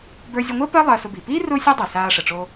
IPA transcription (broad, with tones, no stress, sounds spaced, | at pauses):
b ə˞˧ zʲ ʊ˧ ŋʷ əː˥ p ɜ˥ lˠ ɜ˧ s ʊ˧ b i˩ p iː˥ r ʊː˥ sʲ ɜ˥ dˤ i˩ s aː˧ ʂ ə˩ ʈ͡ʂ o˧